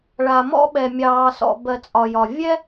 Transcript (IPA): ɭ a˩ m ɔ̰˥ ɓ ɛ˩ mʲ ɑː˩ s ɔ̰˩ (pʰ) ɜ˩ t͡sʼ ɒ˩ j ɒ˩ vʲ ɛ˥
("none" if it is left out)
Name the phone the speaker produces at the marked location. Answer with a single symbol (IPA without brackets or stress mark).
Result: b